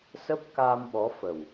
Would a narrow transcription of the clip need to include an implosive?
yes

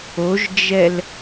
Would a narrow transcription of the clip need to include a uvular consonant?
no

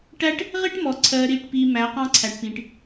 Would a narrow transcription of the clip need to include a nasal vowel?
yes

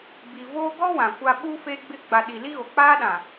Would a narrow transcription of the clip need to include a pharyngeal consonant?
no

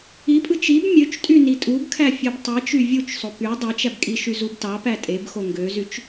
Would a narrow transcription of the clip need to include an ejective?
yes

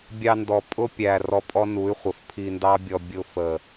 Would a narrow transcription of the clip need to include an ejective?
yes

